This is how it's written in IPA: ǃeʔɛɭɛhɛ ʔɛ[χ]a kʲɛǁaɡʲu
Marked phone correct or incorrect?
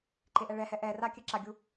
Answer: incorrect